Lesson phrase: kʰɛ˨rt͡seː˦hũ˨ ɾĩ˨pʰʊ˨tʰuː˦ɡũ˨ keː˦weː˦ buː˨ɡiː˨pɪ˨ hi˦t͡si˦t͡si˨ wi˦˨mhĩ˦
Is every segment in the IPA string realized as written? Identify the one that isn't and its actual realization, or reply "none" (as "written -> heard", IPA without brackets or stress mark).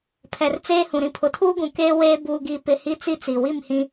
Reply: kʰ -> pʰ